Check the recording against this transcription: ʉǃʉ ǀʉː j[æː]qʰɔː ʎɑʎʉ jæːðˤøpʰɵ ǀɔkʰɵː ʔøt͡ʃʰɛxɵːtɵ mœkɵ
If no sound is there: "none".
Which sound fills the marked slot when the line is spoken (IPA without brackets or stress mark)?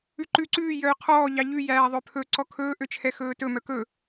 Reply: œː